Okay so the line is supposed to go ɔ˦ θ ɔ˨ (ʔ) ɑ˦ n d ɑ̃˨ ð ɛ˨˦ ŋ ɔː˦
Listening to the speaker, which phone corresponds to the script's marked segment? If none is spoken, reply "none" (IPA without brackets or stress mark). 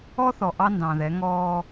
ʔ